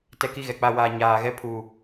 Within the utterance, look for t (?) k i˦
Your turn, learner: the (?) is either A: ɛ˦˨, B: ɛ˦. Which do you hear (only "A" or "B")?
B